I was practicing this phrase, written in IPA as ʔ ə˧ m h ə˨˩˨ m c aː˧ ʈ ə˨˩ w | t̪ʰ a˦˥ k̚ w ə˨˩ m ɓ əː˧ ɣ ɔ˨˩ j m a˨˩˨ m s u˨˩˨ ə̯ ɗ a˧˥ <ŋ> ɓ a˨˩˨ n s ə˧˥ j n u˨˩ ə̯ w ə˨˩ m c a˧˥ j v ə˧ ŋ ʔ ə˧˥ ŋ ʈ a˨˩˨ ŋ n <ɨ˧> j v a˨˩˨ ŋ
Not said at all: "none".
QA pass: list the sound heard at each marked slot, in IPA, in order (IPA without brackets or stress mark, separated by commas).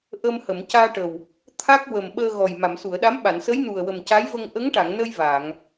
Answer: m, ə˧